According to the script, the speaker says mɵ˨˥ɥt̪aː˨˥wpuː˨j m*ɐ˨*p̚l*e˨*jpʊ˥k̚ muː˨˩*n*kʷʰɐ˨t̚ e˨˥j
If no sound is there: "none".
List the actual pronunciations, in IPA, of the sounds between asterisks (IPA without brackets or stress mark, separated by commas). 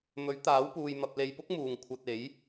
ɐ˨, e˨, ŋ